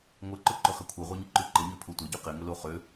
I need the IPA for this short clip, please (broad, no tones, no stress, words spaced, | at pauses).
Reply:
ŋʷɐǃʊ ǃʊχɛ kʷʰœʁʷɛɲɪǃy ǃɪɲøpʰu tʷɐɟy qɪŋʊlo χø